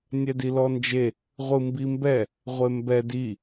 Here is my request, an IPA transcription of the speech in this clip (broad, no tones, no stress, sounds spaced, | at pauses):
nʲ ɛ d i l ɔ n d͡ʒ e | ʁʷ ɯ m b i m b ɛ | ʁʷ e m b ɛ d i